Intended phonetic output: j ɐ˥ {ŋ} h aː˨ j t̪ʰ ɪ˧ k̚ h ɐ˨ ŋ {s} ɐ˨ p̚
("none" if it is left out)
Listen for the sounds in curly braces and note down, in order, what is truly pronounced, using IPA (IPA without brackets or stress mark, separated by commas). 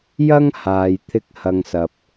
ŋ, s